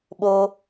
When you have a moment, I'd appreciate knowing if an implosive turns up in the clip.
yes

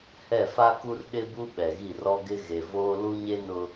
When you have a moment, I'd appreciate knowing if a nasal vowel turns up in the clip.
no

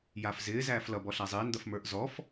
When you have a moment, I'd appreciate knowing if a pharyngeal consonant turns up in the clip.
no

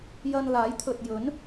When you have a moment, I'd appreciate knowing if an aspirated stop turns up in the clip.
yes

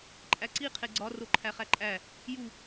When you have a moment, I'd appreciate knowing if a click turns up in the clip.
yes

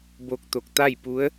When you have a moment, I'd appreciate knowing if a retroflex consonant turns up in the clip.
no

